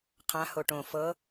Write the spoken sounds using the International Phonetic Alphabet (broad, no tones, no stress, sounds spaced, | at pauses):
qʰ ã h o ʈ õ f ɤ